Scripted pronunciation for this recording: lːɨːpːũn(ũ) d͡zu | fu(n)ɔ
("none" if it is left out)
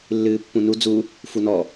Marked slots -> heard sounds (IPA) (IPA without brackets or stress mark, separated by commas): u, n